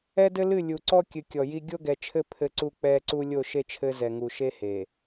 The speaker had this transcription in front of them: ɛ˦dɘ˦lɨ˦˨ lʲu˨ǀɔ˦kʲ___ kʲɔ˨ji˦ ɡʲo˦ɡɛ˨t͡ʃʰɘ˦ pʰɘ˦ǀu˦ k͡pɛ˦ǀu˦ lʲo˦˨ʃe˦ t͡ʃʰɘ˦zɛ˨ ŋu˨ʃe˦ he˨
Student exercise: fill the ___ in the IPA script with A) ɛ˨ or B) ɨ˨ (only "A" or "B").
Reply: B